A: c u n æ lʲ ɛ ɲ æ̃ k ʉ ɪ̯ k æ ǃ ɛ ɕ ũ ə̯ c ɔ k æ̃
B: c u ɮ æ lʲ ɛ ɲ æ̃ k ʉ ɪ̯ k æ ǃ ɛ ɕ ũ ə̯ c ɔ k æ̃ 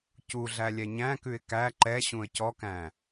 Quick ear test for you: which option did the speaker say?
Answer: B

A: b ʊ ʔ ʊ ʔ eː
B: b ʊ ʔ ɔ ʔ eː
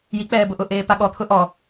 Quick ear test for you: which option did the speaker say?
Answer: A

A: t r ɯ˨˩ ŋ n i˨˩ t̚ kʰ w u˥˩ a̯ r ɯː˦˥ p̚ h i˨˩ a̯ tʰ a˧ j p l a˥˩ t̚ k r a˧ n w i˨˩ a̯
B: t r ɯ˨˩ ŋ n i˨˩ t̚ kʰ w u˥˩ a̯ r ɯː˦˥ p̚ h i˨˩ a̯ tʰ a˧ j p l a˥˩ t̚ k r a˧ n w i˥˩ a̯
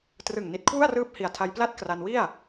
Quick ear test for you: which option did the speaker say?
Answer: B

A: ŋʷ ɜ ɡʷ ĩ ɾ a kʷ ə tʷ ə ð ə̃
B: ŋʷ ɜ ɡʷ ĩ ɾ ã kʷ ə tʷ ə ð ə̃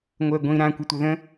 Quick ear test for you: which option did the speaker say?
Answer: B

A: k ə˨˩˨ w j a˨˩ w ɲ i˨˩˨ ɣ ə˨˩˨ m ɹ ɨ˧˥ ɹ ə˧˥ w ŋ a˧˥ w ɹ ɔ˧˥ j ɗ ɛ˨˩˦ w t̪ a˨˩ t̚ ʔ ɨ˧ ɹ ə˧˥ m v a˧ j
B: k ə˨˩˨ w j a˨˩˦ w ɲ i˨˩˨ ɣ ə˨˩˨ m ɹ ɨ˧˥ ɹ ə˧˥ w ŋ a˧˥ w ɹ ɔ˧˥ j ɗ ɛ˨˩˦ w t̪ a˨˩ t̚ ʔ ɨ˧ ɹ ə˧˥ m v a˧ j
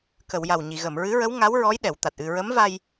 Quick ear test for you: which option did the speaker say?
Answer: A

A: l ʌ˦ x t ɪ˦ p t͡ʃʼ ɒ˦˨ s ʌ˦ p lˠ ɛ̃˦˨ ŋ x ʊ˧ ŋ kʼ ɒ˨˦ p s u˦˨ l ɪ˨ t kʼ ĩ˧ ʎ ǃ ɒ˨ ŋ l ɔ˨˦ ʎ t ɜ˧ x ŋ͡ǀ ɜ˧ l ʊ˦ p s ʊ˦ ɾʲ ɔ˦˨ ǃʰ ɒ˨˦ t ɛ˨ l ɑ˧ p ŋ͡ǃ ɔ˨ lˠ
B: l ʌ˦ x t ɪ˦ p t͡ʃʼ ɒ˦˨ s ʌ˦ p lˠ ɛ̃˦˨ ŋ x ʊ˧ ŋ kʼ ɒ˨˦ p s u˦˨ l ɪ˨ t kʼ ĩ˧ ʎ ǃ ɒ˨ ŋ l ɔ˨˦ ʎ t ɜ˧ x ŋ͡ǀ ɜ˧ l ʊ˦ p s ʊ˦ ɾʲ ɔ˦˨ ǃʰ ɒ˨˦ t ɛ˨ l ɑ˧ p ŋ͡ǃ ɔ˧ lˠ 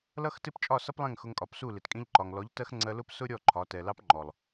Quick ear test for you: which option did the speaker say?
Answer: A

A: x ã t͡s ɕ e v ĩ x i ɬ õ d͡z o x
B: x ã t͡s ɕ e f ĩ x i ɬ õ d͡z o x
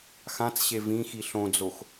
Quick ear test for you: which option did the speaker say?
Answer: A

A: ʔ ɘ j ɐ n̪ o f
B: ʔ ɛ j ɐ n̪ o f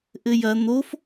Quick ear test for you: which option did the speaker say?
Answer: A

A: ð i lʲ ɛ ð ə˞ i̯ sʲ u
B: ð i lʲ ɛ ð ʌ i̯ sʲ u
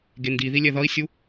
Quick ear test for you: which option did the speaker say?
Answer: B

